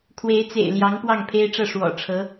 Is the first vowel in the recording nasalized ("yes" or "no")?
no